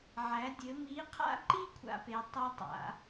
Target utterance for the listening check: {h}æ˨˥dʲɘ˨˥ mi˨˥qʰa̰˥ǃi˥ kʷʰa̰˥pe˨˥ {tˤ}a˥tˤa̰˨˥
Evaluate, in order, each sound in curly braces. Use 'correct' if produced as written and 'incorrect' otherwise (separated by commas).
incorrect, correct